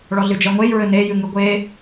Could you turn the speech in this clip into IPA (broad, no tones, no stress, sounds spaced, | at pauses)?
ɭ ɔ ɮ ɨ d͡ʒ ɛ ŋʷ e j ɹ ɘ n e j ɨ ŋ ɨ ɡʷ e